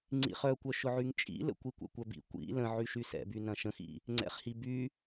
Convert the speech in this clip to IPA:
ŋ͡ǀ ḭ χ œ kʷ œ ʃ ʊ ʕ y ŋ t͡ʃʼ ḭ l ə̰ kʷ i kʷ ɛ̰ kʷ œ b ḭ kʷ ḭ l ə̃ ʕ y ʃ y s ɛ̰ b y n ɐ̃ ʃ ə̃ x ḭ | ŋ͡ǀ ɛ̰ χ h i b y

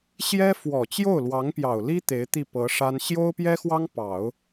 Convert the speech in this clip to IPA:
ɕ j ɛ˥ f w ɔ˨˩ t͡ɕ j o˥˩ ʊ̯ l w ɑ˧˥ ŋ p j ɑ˨˩ ʊ̯ l i˥ t̪ e˧˥ ɪ̯ t̪ i˥˩ p ɤ˧˥ ʂ a˥ n ɕ j o˥ ʊ̯ p j ɛ˥ x w ɑ˥ ŋ p ɑ˨˩˦ ʊ̯

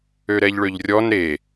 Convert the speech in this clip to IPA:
ø ɾ ɛ ʎ ɭ ø ʎ rʲ ɔ n ɾ e

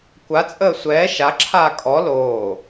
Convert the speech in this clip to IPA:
kʷ a t͡sʼ əː sʷ ɛː ʃ a ǁʰ aː kʼ ɔ l oː

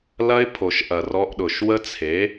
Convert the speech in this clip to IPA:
l ɐ˦ ɪ̯ pʰ o˨ ʃ ʔ ɐ˨ r ɔ˧ ʔ ɗ ʊ˨ ʃ w ə˦ t͡sʰ e˨˦

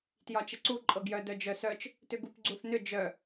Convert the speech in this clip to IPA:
t j ɒ t͡ʃ ə ǀ u ǃʼ ɤ ɡ j œ d œ d͡ʒ œ s œ t͡ʃ | t ʏ ɡ u p ɡ͡ǀ u θ n ʏ d͡ʒ œ

